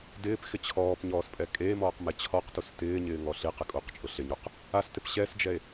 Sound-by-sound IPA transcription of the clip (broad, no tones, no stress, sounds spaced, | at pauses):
d ɪː p x ɪ t͡ɕʰ ɔː p ɲ ɔː s pʼ ɛ kʼ eː m ɔː q m ɛ t͡ɕʰ ɔ q t u s t ɪː ɲ ɪː ŋ ɔ ɬ i q ɪ kʼ u q t͡ʃʼ ʊ ɬ ɪ ɲ u q | a s t ɪ p ɕ ɛ s d͡ʒ ɛ e̯